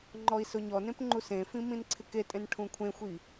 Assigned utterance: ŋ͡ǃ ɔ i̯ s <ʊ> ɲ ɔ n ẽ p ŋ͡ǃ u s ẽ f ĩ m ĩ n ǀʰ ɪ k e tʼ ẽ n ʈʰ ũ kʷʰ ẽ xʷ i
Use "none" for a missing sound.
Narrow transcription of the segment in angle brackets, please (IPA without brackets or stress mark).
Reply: ʊ